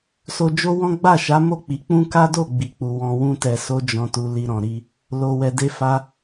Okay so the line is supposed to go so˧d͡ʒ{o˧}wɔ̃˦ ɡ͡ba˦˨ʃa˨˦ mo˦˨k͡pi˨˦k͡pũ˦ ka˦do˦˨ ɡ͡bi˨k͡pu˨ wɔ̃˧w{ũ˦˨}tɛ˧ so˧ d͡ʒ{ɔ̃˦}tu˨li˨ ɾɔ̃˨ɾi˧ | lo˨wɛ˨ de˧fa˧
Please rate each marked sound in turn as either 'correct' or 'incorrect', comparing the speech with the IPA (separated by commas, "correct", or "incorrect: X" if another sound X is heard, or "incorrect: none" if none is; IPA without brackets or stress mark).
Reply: incorrect: o˦, incorrect: ũ˦, incorrect: ɔ̃˨